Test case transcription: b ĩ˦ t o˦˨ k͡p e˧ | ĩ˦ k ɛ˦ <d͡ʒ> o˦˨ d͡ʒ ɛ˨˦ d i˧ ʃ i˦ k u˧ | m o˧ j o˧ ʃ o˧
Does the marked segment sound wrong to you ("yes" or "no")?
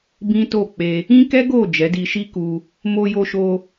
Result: yes